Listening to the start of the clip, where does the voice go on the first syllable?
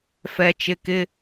low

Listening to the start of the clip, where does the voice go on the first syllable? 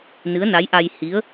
rising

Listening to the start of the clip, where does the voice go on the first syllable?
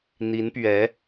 rising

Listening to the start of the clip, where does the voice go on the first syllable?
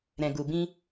low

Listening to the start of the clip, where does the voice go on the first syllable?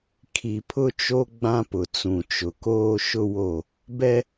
low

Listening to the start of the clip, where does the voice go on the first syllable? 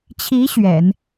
rising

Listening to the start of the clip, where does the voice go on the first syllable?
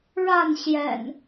falling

